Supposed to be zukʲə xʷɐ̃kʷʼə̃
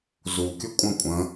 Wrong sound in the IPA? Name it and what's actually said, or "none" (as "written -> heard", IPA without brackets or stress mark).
xʷ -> kʷʼ